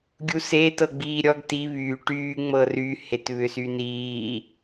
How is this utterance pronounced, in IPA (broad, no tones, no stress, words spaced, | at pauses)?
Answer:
ɡʲuseːt ɤɡ͡biːɾʲɔɡ ti βyː ʈyː ŋ͡mɤry hetβʏsyniː